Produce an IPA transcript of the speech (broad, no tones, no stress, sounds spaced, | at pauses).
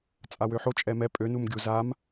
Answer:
t͡sʼ a w ø ħ o t͡ʃʼ ɛ m ɛ pʼ ø n u m ɡʲ u z a m